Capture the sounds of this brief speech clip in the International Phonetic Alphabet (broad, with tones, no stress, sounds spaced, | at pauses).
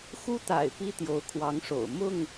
x u˦ t̪ a̰˨˩ ɪ̯ p i˦ t̪ j o˨˦ ʊ̯ kʰ w ɑ˨˦ ŋ ʂ o̰˨˩ ʊ̯ m ʊ˥˨ ŋ